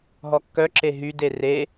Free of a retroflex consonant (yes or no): yes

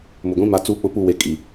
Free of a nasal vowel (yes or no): no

